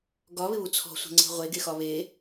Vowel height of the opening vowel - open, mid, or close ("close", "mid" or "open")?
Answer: open